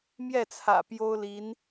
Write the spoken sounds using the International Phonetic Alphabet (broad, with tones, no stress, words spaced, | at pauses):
mjɛ˥˩t͡sʰä̰˨˩ pjo˥ʊ̯li˧˥n